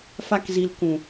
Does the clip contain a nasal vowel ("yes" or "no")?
yes